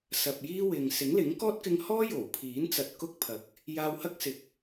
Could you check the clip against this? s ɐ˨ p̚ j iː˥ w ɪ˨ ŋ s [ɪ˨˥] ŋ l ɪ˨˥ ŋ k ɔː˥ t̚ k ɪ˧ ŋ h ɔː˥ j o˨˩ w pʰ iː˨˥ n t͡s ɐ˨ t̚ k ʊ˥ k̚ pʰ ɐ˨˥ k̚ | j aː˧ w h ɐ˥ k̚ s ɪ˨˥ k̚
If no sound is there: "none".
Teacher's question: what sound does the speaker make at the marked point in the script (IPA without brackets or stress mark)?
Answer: ɪ˨˥